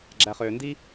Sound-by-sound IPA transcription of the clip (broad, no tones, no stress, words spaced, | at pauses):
ɡ͡ǁæχøːndi